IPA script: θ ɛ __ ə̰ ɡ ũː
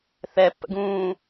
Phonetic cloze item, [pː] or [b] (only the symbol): pː